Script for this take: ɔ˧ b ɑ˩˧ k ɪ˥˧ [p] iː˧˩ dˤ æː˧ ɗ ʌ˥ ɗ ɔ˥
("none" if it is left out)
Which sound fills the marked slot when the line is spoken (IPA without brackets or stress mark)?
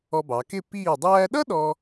p